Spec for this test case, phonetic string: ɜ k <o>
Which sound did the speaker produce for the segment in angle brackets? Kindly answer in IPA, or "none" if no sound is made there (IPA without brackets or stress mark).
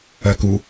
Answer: u